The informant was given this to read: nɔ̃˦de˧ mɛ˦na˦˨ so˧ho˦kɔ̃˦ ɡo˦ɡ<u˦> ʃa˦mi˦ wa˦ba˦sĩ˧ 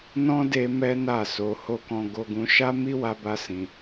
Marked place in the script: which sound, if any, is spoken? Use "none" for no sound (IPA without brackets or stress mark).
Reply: ũ˦